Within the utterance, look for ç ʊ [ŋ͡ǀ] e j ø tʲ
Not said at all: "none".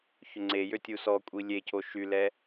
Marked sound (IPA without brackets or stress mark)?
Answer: ŋ͡ǀ